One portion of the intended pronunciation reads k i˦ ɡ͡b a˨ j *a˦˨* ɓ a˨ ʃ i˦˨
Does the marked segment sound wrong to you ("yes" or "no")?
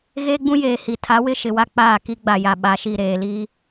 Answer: yes